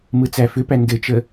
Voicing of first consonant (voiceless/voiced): voiced